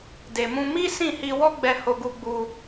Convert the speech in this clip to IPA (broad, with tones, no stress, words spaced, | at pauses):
de˨mũ˧mi˦ sĩ˦˨hi˧ wɔ˦ɡ͡bɛ˧ ho˧ɡu˧ɡ͡bu˧